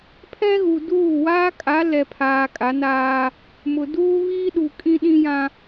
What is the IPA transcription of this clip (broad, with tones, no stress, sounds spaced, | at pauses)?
pʰ ɛ˦ ɣ u˨ d uː˦˨ w aː˦ kʼ a˨˦ l ɛ˨ pʰ aː˨ kʼ a˨˦ n aː˦ | m ʊ˨ d uː˦ β iː˦ ɗ u˨ kʼ ĩ˦ ɗ ĩ˦ j ã˦